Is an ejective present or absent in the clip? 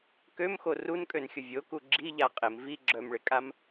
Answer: present